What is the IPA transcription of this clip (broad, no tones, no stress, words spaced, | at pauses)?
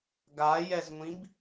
ɡajɛzŋʷĩb